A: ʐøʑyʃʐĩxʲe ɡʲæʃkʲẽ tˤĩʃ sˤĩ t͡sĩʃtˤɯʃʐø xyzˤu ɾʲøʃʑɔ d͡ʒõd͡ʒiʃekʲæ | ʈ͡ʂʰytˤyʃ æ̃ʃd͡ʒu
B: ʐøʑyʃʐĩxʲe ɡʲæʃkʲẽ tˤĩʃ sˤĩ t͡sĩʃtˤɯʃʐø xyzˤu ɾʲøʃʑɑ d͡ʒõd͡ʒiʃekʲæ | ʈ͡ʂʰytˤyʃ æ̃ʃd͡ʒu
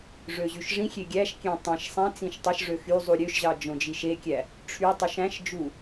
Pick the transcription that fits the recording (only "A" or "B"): B